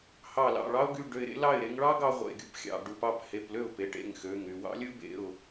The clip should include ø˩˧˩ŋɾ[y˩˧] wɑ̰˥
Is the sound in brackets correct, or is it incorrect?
incorrect